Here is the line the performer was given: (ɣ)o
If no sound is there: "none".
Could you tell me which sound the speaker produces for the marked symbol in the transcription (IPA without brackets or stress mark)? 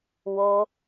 w